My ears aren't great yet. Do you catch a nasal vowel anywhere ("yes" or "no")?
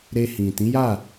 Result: yes